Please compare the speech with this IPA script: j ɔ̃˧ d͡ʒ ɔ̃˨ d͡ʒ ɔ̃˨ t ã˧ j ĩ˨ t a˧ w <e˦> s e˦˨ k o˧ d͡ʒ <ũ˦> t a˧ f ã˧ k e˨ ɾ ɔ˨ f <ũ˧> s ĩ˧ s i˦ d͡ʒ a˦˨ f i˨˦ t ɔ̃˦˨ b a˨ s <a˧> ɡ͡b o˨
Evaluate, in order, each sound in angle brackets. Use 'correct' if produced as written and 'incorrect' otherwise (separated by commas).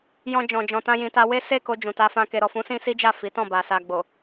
correct, incorrect, incorrect, incorrect